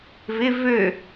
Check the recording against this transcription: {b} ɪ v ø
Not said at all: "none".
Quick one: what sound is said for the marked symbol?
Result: v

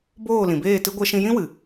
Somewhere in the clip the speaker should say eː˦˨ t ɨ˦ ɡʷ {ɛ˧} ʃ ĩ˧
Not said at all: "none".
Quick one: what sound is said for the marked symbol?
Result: ɛ˧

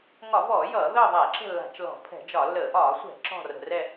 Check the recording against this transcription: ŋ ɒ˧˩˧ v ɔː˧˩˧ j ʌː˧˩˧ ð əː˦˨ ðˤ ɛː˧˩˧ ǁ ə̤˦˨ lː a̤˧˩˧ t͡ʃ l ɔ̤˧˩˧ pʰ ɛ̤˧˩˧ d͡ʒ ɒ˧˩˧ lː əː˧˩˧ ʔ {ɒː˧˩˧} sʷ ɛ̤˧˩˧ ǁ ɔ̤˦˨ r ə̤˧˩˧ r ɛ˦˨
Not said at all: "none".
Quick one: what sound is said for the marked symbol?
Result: ɒː˧˩˧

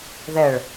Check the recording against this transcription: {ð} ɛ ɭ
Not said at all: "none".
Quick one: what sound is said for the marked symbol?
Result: ð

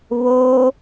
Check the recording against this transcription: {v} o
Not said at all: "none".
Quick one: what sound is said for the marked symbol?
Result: β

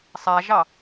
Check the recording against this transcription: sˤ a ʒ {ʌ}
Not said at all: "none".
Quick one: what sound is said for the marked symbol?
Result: ɑ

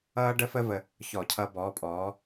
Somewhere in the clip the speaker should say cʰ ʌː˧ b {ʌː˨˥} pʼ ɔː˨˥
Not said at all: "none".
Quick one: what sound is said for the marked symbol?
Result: ɔː˨˥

